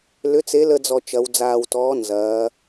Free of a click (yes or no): yes